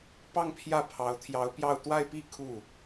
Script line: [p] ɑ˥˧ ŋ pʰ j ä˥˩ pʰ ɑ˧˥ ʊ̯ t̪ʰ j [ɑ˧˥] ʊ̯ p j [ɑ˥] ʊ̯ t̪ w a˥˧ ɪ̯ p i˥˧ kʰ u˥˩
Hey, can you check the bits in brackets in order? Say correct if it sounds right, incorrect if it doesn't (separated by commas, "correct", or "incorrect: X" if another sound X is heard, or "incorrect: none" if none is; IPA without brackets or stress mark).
correct, correct, incorrect: ɑ˥˧